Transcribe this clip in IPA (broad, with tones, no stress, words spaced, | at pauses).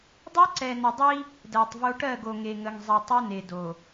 dˤɜ˦ǀɛ˨nə˨dˤi˦ | dɜ˨tˤvo˦ ʈɜ˦˨ɡo˨ ŋe˨ŋə˨ŋzˤɛ˨ tˤo˦ne˨do˨